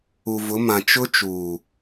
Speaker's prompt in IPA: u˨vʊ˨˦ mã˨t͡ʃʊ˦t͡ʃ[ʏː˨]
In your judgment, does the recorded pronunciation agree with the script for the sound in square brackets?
no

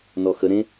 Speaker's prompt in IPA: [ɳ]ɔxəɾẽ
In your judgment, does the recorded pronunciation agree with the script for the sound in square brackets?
no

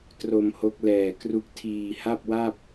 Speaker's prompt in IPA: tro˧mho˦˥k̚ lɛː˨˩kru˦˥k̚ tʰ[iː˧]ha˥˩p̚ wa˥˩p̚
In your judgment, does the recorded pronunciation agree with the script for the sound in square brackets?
yes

